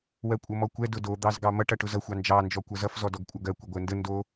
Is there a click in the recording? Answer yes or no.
no